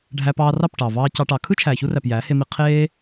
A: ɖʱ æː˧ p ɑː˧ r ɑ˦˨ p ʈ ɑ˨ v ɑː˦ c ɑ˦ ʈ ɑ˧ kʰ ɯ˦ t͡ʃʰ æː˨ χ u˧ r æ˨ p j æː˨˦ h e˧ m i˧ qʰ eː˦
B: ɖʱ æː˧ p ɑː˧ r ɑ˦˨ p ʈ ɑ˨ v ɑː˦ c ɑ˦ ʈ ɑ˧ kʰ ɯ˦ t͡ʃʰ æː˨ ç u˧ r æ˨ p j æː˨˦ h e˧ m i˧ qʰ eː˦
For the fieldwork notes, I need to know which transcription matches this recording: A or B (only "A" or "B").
B